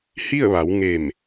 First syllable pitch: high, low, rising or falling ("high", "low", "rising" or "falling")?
falling